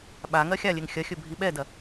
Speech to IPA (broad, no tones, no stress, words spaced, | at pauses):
ɓaŋɜ xʲalʲeŋ xʲɐxʲɵ bʱiɓɛdɐ